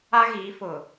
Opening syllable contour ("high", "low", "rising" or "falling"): high